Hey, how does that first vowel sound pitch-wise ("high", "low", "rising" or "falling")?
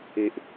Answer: high